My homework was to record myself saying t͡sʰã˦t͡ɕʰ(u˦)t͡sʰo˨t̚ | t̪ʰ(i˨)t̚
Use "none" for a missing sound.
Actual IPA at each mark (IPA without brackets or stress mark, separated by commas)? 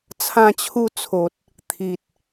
u˦, i˨